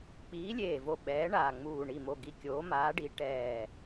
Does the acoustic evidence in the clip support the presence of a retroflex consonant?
yes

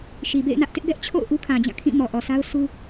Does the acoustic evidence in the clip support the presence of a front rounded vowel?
no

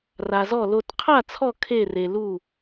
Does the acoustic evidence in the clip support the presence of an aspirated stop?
yes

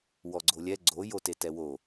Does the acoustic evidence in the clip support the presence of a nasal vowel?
no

